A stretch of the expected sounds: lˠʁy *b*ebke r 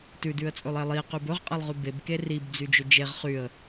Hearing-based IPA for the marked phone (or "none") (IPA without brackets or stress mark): b